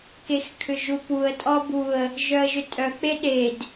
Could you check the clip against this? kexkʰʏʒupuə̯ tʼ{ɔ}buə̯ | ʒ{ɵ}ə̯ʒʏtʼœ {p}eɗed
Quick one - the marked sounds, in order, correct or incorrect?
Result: correct, incorrect, incorrect

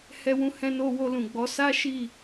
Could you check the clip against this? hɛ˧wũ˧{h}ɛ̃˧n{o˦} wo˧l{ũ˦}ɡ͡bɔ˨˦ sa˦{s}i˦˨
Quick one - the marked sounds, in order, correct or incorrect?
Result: correct, incorrect, incorrect, incorrect

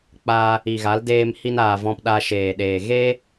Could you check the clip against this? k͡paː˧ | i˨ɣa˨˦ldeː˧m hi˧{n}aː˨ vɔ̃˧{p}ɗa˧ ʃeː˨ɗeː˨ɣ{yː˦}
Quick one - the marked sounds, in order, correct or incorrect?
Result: correct, correct, incorrect

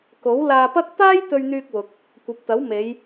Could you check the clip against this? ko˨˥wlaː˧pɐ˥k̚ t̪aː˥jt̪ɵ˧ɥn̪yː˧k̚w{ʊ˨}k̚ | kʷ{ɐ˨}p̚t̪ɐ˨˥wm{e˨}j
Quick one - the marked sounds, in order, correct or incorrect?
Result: correct, correct, incorrect

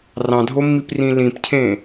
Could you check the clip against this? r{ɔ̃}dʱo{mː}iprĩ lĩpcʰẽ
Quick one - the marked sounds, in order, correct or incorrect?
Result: incorrect, correct

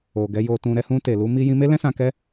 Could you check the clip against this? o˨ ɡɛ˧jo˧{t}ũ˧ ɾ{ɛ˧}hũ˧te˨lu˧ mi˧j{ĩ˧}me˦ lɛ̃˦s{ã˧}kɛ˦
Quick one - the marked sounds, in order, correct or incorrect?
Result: correct, correct, correct, correct

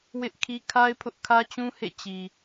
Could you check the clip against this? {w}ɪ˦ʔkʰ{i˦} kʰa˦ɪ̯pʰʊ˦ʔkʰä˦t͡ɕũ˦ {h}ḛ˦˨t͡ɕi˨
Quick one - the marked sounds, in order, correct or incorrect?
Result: correct, correct, correct

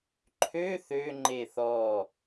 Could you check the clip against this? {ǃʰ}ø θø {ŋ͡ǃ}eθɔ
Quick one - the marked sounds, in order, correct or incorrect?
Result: correct, correct

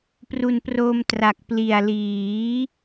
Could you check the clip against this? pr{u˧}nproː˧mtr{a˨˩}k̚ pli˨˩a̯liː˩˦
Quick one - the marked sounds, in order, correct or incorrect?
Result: incorrect, correct

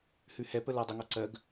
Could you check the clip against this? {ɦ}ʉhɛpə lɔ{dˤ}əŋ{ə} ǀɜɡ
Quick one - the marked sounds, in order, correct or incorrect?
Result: incorrect, correct, incorrect

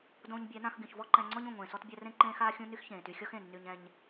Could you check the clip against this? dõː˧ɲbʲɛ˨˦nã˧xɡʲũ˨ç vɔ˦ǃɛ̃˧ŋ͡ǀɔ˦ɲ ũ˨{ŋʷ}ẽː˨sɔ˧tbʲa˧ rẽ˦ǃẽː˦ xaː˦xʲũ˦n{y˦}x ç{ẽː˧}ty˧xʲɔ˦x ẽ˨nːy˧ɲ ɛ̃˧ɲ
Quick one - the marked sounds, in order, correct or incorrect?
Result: correct, correct, incorrect

